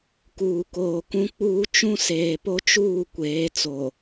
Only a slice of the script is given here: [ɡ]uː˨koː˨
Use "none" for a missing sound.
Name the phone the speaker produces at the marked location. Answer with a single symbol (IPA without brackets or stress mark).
k